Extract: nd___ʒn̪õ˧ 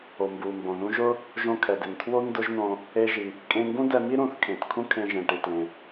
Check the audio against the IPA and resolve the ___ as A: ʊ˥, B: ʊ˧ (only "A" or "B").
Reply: A